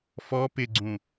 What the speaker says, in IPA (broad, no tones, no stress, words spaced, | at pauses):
fɔ pɪɡ͡ǀũ